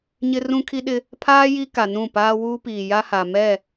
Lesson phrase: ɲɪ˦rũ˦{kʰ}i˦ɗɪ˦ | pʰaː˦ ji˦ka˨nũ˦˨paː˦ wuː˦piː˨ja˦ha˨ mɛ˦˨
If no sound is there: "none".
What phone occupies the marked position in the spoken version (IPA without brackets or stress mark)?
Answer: kʰ